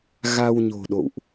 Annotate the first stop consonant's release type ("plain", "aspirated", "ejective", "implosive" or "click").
implosive